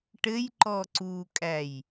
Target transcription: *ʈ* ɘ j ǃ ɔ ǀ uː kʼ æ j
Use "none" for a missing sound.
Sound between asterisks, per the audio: ʈ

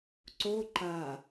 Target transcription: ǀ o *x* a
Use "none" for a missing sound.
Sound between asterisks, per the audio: ǃ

